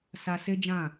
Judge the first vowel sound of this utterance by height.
low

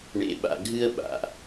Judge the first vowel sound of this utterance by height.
mid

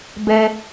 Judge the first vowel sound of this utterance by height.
mid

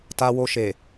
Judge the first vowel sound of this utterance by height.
low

